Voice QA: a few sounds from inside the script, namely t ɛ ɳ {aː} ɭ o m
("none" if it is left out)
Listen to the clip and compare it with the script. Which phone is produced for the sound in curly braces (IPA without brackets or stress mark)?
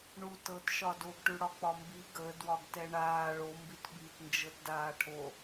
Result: aː